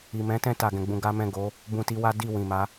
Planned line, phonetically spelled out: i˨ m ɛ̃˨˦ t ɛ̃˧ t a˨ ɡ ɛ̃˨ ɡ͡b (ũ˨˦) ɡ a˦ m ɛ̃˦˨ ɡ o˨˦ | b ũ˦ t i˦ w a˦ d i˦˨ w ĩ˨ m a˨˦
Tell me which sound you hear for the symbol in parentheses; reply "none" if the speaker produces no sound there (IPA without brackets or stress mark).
ũ˧